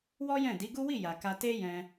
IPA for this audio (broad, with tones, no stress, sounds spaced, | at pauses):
w ɔ˦ j ɛ̃˦˨ d i˨˦ ɡ u˦ w i˦˨ j a˨ k a˧ t e˦ j ɛ̃˧